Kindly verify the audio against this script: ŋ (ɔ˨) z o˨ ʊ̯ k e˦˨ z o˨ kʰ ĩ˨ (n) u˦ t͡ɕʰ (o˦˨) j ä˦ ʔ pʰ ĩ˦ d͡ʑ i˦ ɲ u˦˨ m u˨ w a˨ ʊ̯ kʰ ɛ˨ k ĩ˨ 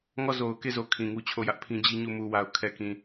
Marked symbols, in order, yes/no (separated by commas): no, no, yes